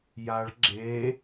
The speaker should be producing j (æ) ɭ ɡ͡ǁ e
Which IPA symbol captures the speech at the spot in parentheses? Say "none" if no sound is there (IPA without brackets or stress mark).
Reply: a